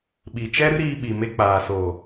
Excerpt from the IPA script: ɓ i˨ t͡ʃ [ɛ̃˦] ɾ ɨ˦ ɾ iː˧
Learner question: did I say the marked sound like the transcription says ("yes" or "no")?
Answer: no